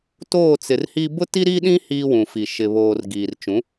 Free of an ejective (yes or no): yes